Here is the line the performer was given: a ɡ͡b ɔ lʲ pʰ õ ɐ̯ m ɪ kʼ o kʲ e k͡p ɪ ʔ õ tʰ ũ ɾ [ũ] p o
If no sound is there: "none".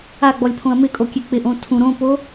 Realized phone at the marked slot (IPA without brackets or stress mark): õ